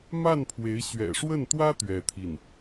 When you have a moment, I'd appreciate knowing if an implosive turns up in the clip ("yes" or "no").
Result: no